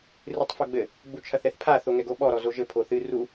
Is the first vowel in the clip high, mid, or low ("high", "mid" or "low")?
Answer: high